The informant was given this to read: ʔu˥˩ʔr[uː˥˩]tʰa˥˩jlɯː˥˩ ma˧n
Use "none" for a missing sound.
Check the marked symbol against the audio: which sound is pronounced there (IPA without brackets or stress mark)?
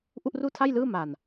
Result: uː˥˩